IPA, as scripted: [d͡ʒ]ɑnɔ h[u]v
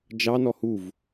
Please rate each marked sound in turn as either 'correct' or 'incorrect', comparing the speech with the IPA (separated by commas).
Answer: correct, correct